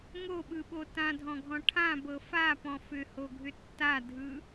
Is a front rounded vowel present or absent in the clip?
present